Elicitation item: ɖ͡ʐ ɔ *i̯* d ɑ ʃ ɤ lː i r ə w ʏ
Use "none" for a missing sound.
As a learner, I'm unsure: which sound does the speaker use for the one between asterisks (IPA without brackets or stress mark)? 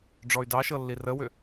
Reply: y̯